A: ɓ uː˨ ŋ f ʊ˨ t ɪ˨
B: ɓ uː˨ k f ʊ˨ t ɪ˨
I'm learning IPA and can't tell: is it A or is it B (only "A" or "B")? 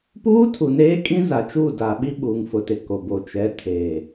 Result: A